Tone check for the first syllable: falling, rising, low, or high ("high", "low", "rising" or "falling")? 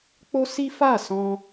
high